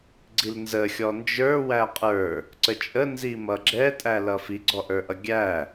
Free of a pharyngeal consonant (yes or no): yes